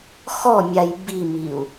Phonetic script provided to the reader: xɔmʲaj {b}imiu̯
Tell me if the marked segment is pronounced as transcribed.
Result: yes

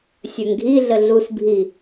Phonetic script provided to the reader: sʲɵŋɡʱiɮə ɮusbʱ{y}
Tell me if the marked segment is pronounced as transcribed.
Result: no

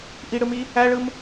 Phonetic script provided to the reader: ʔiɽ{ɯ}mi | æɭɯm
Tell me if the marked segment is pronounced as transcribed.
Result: yes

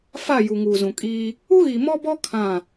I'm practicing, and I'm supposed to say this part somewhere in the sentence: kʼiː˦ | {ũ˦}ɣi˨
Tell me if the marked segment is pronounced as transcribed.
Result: no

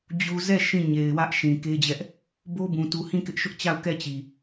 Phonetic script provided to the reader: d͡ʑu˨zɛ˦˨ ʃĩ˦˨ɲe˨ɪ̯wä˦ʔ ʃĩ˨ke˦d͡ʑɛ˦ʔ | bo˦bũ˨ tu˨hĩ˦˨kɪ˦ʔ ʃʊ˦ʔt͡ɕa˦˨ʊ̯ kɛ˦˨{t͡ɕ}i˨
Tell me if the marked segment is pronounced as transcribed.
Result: yes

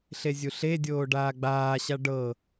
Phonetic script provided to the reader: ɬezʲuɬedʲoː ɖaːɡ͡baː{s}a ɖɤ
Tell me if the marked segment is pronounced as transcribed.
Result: no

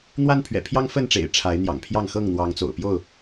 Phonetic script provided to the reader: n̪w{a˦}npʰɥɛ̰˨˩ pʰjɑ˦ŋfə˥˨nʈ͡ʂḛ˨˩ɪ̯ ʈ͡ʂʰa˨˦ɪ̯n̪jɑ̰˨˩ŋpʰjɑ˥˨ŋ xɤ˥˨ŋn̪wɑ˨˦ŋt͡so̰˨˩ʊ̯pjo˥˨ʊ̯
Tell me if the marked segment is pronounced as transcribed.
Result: yes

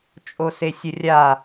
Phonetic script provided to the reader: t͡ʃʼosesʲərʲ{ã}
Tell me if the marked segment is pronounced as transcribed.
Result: no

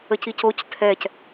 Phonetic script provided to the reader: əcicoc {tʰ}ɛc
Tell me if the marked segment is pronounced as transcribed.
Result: yes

